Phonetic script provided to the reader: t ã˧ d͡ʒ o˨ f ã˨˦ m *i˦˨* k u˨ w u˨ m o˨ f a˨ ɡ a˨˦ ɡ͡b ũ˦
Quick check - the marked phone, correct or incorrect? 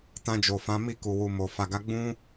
correct